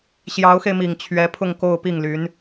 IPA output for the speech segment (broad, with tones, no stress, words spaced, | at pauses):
ɕjɑ˧˥ʊ̯xe˧ɪ̯mi˨˩ŋ t͡ɕʰɥɛ˧˥pʰʊ˥˧ŋ ko˥˧ʊ̯pi˥˩ŋly˧˥n